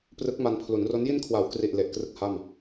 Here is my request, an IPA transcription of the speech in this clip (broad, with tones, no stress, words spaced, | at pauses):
prɯ˦˥k̚ma˧n pʰlu˩˦nro˦˥n ji˧nkʰwa˩˦wkri˨˩ʔ le˨˩ʔkrɯ˦˥k̚ ha˥˩m